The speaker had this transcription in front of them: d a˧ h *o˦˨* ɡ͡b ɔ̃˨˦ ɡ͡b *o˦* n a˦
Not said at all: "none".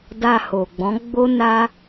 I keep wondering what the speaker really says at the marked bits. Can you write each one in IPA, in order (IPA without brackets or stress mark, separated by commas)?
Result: o˨, o˦